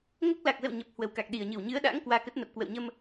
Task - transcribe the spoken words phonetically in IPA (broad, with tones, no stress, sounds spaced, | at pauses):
ŋ o˦˥ k̚ l a˨˩ k̚ z ə̰˧˨ w ɲ ə˨˩ p̚ h w ə˨˩ w k a˨˩ k̚ ɗ i˨˩ ə̯ ɲ ɨ˧˩ w ɲ ɨ˨˦ ə̯ ɗ a̰ː˧˥ ŋ k w aː˧ k ə˦˥ t̚ n ə˨˩ p̚ k w ə̰˧˨ w ɲ ə˧ m